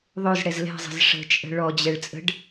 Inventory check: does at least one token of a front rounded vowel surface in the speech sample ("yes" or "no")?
yes